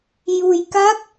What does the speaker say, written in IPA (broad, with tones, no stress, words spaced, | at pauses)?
ju˧jka˦˥k̚